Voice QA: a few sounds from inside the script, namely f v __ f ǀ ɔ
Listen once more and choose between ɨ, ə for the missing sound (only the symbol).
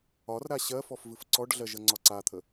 ɨ